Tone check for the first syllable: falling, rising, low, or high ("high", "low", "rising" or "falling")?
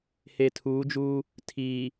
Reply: low